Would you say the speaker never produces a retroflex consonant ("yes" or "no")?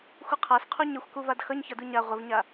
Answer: yes